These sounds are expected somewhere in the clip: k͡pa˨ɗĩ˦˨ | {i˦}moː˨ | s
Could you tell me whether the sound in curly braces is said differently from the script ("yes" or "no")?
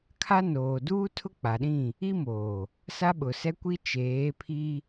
no